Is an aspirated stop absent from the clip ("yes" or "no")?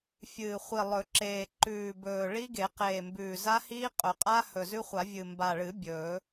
yes